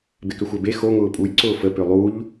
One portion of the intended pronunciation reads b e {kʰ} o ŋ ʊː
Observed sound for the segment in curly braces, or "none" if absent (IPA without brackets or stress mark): x